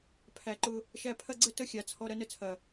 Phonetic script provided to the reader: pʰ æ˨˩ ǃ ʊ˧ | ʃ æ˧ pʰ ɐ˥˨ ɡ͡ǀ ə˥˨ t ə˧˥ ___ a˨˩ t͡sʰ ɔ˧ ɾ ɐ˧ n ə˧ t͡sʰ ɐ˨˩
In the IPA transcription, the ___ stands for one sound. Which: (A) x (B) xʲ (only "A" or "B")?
B